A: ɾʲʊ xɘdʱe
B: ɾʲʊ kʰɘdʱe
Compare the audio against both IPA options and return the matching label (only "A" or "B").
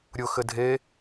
A